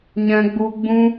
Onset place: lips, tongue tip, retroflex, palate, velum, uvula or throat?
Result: palate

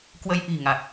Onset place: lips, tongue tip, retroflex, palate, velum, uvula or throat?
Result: velum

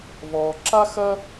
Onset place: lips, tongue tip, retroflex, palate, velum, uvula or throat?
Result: lips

